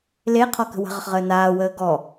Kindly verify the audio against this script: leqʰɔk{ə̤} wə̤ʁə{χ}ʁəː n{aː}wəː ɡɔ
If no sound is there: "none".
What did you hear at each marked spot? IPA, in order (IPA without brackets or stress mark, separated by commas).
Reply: ə̤, χ, aː